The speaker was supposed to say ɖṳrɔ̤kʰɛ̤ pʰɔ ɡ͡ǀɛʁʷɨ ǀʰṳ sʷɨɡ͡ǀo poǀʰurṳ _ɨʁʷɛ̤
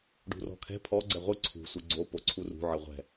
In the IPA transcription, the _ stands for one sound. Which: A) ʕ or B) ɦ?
A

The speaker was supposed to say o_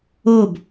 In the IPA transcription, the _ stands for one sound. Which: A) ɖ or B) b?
B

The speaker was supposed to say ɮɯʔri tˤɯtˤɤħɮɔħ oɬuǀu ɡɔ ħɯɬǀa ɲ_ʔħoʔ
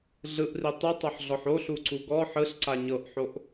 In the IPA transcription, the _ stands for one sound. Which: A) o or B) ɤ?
B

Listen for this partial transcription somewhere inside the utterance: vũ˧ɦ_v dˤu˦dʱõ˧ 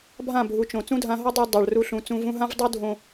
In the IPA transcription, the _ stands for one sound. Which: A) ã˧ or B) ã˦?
B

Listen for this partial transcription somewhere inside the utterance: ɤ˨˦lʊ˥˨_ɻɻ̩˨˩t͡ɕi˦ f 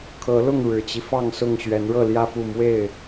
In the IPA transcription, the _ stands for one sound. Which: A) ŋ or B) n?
A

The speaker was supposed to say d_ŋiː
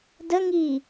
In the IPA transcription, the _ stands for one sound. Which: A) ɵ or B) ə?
B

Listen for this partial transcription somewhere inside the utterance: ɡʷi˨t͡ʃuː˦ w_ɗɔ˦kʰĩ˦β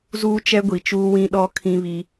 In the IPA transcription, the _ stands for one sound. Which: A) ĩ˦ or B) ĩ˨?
A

